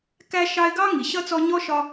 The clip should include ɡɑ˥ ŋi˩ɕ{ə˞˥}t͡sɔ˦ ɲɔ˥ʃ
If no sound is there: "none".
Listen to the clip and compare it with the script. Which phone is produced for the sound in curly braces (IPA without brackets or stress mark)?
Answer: ʌ˥